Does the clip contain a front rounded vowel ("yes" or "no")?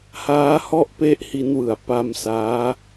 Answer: no